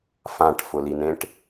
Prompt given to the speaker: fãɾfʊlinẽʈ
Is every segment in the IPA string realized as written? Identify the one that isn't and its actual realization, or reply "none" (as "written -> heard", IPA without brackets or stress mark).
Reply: ɾ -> ʈ